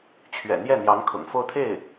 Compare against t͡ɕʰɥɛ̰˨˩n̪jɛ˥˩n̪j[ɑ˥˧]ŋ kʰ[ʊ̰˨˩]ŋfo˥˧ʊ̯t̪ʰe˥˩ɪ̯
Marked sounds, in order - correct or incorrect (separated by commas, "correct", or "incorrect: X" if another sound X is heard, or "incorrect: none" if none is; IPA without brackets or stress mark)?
incorrect: ɑ˧˥, correct